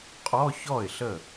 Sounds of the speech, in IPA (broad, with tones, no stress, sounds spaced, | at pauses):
qʼ ɔ˧˥˧ ç ɔ˥˩ ɪ̯ ɬ ə˥˩